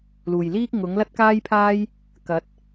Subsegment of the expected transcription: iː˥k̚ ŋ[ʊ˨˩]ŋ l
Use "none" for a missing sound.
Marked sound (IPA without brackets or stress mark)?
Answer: ʊ˨˥